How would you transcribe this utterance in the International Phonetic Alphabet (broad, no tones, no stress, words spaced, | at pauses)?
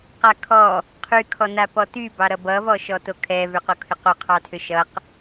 qakʰɔ | qʰy kʰɔnapɔty bɑɾʌbʌ vɔʃɔtokʰɛ vʏqokʰʏqo qʰɑtʰʏʃʌq